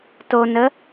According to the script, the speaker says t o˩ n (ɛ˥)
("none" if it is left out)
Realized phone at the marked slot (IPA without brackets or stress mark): ə˥